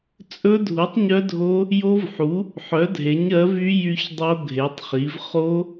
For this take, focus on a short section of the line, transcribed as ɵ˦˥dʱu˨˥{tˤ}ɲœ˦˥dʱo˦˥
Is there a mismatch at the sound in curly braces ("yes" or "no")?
no